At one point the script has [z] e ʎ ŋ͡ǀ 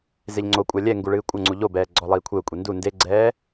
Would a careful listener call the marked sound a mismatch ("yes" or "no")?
no